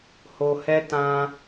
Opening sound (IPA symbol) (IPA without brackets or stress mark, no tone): h